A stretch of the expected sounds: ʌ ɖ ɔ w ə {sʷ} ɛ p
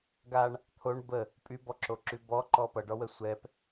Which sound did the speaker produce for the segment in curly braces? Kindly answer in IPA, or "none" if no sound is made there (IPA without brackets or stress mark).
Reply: sʷ